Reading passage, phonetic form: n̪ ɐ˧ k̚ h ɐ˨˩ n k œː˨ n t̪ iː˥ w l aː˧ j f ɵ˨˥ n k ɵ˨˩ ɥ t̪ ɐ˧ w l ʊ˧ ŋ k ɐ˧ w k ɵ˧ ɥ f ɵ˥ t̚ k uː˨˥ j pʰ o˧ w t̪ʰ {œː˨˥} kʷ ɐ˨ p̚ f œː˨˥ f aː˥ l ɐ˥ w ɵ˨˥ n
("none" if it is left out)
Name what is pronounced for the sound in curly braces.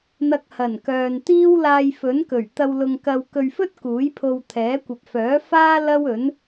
ɛː˨˥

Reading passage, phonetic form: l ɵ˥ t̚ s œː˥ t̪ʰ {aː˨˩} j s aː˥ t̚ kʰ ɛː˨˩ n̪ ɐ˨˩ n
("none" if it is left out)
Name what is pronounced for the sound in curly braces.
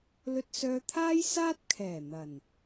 aː˥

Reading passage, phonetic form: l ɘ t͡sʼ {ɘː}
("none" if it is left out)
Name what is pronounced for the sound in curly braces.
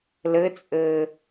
ɘː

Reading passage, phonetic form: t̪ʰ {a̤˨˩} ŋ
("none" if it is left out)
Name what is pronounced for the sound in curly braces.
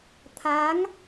a˨˦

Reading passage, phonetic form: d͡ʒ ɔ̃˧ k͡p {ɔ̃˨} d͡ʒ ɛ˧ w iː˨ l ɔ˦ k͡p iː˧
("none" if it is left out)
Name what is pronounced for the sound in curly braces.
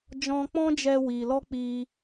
ɔ̃˦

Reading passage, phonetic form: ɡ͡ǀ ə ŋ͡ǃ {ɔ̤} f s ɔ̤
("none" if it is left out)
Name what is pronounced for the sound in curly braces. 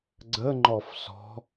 ɔ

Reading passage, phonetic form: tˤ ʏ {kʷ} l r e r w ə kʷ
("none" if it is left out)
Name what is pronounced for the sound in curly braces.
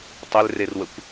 none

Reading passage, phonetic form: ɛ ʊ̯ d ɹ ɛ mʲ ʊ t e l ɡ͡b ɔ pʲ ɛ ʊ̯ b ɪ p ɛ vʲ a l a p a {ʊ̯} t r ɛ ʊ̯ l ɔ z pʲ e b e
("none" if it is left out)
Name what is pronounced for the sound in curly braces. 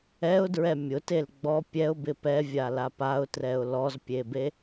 ʊ̯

